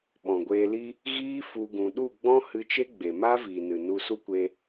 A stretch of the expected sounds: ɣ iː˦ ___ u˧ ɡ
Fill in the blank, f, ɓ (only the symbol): f